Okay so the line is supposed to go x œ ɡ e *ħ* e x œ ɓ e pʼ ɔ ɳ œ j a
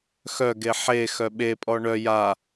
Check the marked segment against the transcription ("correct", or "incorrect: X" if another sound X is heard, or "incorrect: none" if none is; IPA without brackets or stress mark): correct